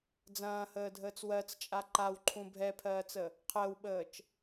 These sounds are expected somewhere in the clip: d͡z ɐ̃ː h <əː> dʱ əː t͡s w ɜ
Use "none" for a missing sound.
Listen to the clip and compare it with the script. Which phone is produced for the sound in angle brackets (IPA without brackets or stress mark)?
əː